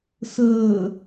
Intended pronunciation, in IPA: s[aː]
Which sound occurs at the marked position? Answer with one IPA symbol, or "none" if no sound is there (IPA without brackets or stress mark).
əː